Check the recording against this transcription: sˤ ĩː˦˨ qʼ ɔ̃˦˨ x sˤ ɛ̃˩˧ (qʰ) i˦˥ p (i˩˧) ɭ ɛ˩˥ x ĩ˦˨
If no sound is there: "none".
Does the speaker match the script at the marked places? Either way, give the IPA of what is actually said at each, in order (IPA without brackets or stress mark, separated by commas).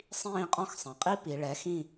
qʼ, i˩˧